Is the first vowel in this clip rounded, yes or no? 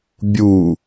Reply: yes